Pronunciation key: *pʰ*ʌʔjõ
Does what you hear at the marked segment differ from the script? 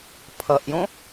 no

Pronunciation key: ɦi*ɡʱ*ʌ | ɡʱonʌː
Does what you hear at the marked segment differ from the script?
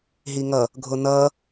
yes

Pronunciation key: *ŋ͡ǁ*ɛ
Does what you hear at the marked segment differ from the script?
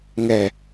yes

